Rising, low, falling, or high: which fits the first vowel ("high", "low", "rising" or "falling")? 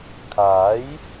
rising